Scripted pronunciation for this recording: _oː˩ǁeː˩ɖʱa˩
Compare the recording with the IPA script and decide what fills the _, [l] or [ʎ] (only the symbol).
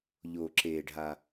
ʎ